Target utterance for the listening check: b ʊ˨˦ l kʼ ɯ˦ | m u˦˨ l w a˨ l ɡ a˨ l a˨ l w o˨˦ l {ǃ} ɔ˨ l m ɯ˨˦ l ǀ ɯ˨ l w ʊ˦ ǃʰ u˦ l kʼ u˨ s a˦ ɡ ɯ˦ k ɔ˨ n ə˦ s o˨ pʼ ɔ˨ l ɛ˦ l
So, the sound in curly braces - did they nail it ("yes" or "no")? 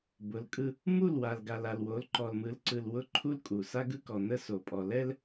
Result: yes